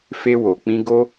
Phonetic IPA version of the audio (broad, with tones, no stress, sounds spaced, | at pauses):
f e˧ w o˨ k͡p ĩ˧ ɡ o˦